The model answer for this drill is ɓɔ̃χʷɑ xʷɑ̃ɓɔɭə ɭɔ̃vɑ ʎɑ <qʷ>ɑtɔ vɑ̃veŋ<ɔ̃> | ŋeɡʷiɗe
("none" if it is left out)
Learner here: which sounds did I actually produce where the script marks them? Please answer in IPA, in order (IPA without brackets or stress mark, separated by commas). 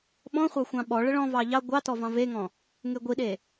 ɡʷ, ɔ̃